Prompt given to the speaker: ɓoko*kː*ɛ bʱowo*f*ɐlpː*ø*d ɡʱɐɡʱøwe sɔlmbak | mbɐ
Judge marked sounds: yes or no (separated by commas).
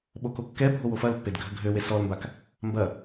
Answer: yes, yes, no